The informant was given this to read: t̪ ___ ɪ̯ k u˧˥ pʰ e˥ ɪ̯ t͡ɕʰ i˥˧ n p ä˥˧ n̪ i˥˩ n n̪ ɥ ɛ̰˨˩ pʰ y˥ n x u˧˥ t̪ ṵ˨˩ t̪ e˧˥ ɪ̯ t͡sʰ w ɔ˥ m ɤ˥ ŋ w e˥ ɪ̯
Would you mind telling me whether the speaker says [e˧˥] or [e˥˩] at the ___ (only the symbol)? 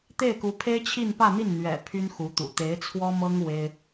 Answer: e˥˩